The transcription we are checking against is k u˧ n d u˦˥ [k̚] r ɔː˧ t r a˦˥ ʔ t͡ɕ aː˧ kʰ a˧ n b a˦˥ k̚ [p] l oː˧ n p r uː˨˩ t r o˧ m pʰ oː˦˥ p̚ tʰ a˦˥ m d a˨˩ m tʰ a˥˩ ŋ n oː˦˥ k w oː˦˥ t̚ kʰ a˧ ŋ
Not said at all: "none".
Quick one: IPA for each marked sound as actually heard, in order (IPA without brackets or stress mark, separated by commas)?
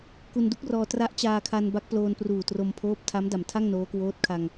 k̚, p